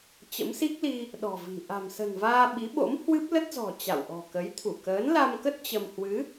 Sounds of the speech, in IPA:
t͡ɕ ə̰˧˥ m s i˦˥ k̚ l i˧ | ɗ ɔ̤˨˩ v i̤˨˩ ʔ a̤˨˩ m s ə̤˨˩ n v aː˧ ɓ i˨˦ ɓ o̰˧˥ m h w ɨ˦˥ p̚ l ə˦˥ t̚ z ɔ̤˨˩ t͡ɕ a̰˧˨ w ʔ ɔ̤˨˩ k ə˨˦ j t̪ʰ u˧˩ k əː˨˦ n l a˧ m k ə˦˥ t̚ t͡ɕ ə˧ m h w ɨ˨˦

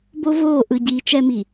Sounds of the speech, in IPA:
b o˦ v oː˦˨ ʔ ɯ˨ ɟ iː˨ t͡ʃ ɛ˦ m i˨

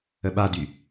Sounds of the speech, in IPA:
ə ɓ a d y

